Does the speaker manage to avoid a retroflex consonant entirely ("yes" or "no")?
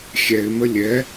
yes